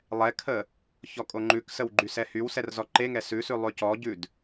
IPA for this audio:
lˠ ɛ kʰ ə | ç ɔ kʼ o ŋ͡ǃ ʉ k s ə w ɡ͡ǃ y s ɛ h y w s ɛ r z ɔ ǃ e ŋ ɛ s ʉ s ʉ lˠ ʉ c ɔ ɟ ʉ d

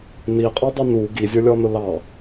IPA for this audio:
n i qʼ ɔ dˤ i n u ɡ i zʲ ə˞ lʲ ɔ n ʊ l ɑ

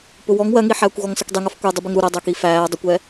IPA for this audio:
p ʊ w ɔ ŋ w ɜ ŋ i ħ æː kʷ ɣ ɔ ŋ s ʌ kʷ dˤ i ŋ ʌ f kʷ ɛ dˤ ʊ b i ŋ ɾ u ɾ ɛ dˤ æ k i f æː dˤ ə kʷ ɛː

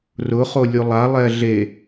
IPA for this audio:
r ʊ χ o lʲ u lˠ a lˠ ɛ ɮ e

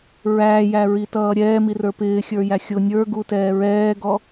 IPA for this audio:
ɹ æː j æ ɹ i t ʌː ɾʲ ɛː m i r ə˞ p ɪː xʲ ə˞ j æ xʲ ʊ nʲ ə˞ ɡ u t ɛː ɹ ɛː ɡ ɔ

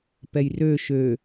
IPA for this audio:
p ɛ j r ø ʃ ø

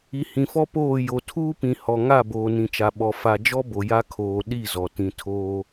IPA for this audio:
i˨ h ĩ˨ f ɔ˦ p oː˦˨ j o˨ tʰ uː˦ p ĩ˨ h ɔ˨ ŋ a˦˨ b oː˨ n ĩ˨ t͡ʃ a˨ ɓ ɔ˨ f a˨ d͡ʒ ɔ˦ b o˨ j a˦ kʰ oː˨ ɗ i˦˨ z ɔ˨ t ĩ˨ tʰ oː˦

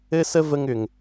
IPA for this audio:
ɘ˦ s ə˦ v ə˧ ŋ ʏ˨ ŋ

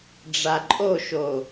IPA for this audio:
ɖ͡ʐ a ǃʼ o ʃ o

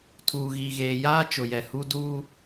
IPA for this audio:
tʰ uː˨ ɣ iː˨ ɣ eː˨ j aː˦ t͡ʃ ʊ˨ j ɛ˨ h u˦ d uː˦

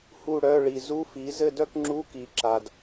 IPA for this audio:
h u˥˨ ɽ œ˧˥˧ ɭ i˨ z u˧˥˧ f i˩˥ z ɘ˥˨ d œ˥ k ŋ͡ǁ u˧˥˧ k i˨˩˦ ǁ a˨ d

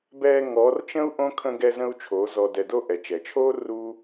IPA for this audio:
b ɛː˧ ŋ ɔ˨˦ r t͡ʃ ə̃˦ u̯ ʔ õ˦ kʰ ə̃˧ ɡ ɛ˧ z ə̃˧ u̯ t͡ʃʰ oː˨˦ z ɔ˧ d ɛ˧ d o˦ ʔ ɛ˨ t͡ʃ ɛ˨ t͡ʃʰ oː˦ r u˦

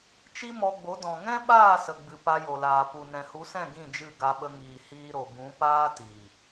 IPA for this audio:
t͡ʃ i˦ m ɔ˧ ɡ͡b o˨˦ d ɔ̃˨ ŋ ɛ̃˦ ɓ aː˦˨ s ə˨ ɡ͡b ɨ˨ p a˧ j o˨ l aː˨ p u˨ n ɛ̃˨ h u˨˦ s ɛ̃˦˨ ɡ ĩ˦˨ d͡ʒ ɨ˦˨ ɡ a˧ ɓ ə˧ ŋ iː˨ h iː˧ ɾ o˨ b ũ˨˦ p aː˦ t i˨

